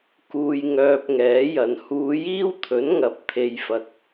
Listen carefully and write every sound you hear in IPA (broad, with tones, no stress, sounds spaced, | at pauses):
k uː˧ j ŋ œː˧ p̚ ŋ ɛː˨˥ j ɐ˨ n h uː˨˧ j iː˥ w t̪ʰ ɵ˨˥ n ŋ ɐ˨˥ p̚ t̪ʰ e˧ j f ɐ˧ k̚